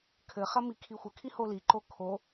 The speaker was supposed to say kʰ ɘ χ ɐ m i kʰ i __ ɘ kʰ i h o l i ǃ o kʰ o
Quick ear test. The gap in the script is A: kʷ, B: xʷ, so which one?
B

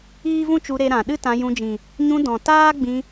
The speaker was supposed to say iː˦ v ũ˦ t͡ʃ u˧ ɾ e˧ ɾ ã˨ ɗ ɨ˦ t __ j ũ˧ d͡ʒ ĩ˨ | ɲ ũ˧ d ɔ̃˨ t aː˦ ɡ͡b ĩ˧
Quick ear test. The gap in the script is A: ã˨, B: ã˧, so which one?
B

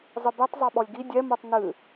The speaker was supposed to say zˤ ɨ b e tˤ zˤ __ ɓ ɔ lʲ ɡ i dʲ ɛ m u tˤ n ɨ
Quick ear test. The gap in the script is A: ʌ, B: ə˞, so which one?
B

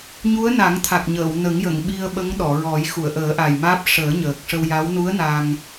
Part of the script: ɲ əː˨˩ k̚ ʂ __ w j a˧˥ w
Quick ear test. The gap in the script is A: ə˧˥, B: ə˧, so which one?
B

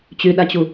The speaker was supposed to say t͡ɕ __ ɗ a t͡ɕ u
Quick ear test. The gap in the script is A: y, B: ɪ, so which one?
A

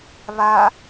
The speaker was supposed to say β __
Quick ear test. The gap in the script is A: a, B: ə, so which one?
A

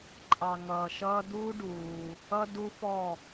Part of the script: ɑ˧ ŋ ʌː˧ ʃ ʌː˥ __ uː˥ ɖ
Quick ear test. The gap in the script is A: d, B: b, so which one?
A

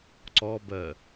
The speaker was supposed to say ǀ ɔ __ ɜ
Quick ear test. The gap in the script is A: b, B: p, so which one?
A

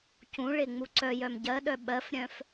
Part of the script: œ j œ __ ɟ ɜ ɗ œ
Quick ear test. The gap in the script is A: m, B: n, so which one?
A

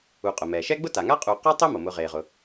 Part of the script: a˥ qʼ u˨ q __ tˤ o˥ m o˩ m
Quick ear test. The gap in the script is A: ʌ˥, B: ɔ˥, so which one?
B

